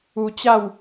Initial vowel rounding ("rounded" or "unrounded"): rounded